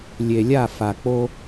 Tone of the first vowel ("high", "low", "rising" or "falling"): low